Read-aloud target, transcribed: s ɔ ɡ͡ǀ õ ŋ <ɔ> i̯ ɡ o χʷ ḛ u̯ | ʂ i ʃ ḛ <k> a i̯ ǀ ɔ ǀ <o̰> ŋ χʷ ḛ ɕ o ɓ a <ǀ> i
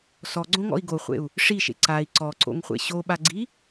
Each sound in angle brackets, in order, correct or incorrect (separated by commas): incorrect, incorrect, correct, incorrect